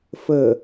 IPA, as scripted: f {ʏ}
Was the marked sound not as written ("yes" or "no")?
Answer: yes